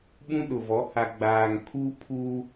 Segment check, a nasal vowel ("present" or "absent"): present